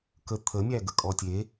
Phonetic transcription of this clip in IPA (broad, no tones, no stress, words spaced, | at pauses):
kə t̪ʰə mʲæɡəkʼɔtʲe